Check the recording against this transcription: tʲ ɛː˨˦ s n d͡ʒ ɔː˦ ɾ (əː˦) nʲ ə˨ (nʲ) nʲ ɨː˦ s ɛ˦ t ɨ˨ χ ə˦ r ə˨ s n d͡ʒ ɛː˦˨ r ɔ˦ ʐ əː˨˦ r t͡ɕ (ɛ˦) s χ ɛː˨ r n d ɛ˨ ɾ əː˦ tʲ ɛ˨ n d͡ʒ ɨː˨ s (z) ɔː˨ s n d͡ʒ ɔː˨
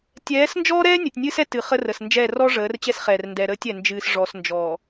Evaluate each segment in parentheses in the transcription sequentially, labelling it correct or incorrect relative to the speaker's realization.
incorrect: ɛː˦, incorrect: tʲ, correct, incorrect: ʐ

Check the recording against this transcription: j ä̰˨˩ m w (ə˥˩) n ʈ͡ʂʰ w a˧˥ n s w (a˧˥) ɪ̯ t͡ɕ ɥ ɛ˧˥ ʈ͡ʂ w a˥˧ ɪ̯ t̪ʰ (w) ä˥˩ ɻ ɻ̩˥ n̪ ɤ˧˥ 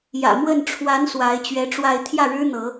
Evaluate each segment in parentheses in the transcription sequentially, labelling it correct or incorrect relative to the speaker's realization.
correct, correct, incorrect: j

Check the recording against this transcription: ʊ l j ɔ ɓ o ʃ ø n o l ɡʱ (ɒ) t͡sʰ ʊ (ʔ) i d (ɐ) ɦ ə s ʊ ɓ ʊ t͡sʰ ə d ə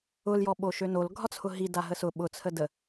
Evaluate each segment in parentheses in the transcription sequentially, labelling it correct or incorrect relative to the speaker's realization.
correct, incorrect: ɦ, incorrect: a

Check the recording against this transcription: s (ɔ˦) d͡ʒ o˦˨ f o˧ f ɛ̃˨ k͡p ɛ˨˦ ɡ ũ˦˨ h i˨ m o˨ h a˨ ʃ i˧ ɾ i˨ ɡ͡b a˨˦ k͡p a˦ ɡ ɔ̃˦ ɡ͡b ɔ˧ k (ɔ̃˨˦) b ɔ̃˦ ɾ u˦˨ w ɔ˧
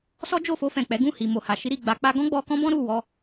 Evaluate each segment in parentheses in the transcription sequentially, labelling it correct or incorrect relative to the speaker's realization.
correct, incorrect: ɔ̃˦

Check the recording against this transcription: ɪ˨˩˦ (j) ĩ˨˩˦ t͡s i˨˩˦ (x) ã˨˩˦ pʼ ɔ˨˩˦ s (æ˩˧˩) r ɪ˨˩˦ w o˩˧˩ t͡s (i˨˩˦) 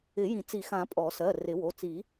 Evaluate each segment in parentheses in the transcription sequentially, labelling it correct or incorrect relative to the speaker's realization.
correct, correct, incorrect: ɜ˩˧˩, correct

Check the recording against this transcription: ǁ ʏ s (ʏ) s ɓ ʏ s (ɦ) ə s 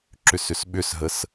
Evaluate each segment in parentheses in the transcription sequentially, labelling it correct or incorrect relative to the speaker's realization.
correct, correct

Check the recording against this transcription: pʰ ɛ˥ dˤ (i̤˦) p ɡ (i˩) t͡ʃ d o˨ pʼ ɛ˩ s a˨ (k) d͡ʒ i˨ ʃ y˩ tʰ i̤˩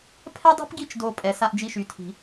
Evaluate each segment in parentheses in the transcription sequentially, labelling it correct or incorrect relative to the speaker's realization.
incorrect: i̤˥, incorrect: i˦, incorrect: ʔ

